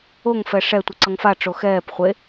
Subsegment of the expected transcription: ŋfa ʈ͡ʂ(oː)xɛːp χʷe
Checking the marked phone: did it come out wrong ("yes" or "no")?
yes